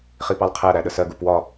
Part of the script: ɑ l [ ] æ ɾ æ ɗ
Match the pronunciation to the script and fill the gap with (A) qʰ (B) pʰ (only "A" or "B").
A